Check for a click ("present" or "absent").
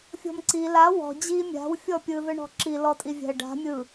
present